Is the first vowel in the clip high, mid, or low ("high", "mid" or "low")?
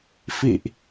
high